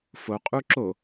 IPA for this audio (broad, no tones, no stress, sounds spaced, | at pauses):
f o qʼ u ǁ o